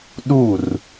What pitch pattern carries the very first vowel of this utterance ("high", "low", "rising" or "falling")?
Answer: falling